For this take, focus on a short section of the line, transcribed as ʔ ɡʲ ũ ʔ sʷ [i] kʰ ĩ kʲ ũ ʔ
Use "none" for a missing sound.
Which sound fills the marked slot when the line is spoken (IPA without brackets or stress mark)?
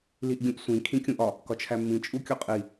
ĩ